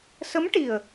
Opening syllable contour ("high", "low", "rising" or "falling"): rising